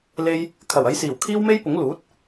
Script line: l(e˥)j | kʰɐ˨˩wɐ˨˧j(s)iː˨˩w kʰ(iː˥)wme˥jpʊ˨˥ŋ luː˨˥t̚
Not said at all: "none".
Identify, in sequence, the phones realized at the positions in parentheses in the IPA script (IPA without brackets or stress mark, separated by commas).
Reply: e˥, s, iː˥